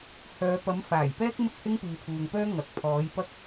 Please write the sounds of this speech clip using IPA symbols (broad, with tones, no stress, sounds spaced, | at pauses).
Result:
h œː˨˧ p ɐ˨˥ m f aː˨˩ j p ɛː˥ k̚ m ɪ˥ k̚ h ɪ˥ ŋ p iː˨˧ pʰ uː˨ ŋ p œː˥ ŋ ɐ˨ k̚ pʰ ɔː˨˥ j p ɐ˥ k̚